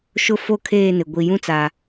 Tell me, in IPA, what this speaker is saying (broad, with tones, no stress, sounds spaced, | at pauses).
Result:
ʃ ʊ˦ f o˦ kʰ eː˦˨ n ɪ˨ ɡʷ i˨ j ũ˦ t͡s a˨